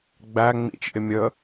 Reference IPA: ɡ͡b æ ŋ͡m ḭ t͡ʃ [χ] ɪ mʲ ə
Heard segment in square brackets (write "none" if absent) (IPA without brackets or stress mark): ʔ